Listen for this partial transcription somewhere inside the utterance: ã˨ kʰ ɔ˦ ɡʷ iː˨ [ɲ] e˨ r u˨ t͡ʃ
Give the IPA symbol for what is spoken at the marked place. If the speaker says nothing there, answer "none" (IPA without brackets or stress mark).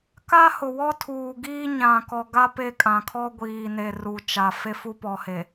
n